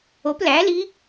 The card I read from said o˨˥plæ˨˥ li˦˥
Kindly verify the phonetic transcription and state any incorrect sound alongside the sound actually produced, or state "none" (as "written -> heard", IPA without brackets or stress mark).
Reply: none